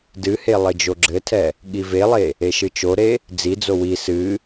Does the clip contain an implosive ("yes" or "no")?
yes